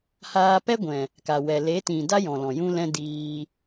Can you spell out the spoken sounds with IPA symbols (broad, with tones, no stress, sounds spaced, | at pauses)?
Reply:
h aː˧ p ɛ˦ ɡʷ ɛ̃˨ | k a˨ w ɛ˨ l e˨˦ t ĩ˨ d a˦ j ɔ̃˨ l ɔ̃˨ j ũ˦ l ɛ̃˦ d iː˧